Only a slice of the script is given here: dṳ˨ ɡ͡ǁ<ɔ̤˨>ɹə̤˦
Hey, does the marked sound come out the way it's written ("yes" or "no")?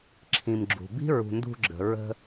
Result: no